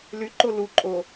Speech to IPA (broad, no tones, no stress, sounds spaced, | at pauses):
l y ǃ o l u ǃʼ o